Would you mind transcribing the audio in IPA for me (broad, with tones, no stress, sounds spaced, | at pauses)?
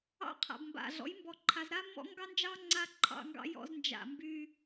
ɑ̰˦ qʰ a̰˨ b m b a̰˨ ɮ ɔ̰˨˦ j m b ɔ˨ ǃʰ a˨ z ɾ a˦ mː ɔ̰˦ ŋ ɡ ɑ˦ n d͡ʒ ɑ˦ ŋ͡ǀ a˦ ǃʰ ɑ̰˨ ŋ ɡ ɑ̰˨ j ɔ̰˨ z n d͡ʒ a̰˨ m b y˦